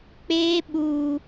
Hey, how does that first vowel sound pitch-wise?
high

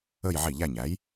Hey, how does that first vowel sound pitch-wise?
falling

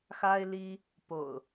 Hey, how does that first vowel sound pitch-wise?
high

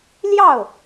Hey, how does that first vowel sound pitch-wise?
falling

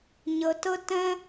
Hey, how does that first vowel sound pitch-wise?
low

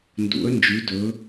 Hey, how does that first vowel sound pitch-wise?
rising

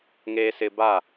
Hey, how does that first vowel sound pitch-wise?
low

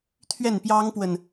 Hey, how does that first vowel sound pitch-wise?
falling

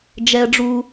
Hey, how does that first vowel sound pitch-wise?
high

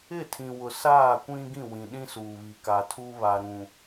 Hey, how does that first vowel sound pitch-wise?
falling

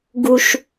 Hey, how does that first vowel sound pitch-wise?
high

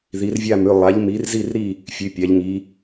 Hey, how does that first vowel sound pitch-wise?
rising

